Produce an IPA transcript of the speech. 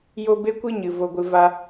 j o˦ b e˦ kʷ ɨ˦ ɲ ɨ˨ v o˧ ɡʷ ɨ˧ v a˦

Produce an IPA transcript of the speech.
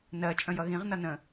n ɜ t͡ʃʼ ə̃ j ʌ ɣ ĩ ʁ n ʌ n ə̃

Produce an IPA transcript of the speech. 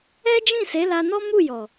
ɛ˦ d͡ʒ ĩ˦˨ s e˨˦ l a˧ n ɔ˦ m u˦˨ j ɔ˨

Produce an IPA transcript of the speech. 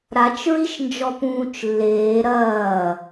ɾ a t͡ʃ ɹ i ʃ n d͡ʒ ɔ p ũː t͡ʃ lː eː ɾ ɐː

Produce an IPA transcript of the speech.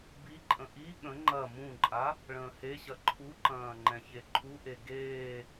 b i ǃʼ ə̃ ʔ i ɠ ə̃ ŋ͡ǃ ɐ m ũ ǃʼ a | ɭ ə̃ː h e ɕ ɐ ǃʰ u ǃ ɐ̃ː ŋ͡ǃ ɛ̃ ç e ǃʰ u ʔ e ɡ eː

